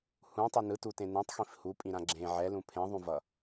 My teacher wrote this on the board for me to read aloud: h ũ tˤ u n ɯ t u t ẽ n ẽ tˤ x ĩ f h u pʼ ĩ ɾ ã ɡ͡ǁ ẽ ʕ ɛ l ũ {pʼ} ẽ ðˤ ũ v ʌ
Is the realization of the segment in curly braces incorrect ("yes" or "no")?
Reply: yes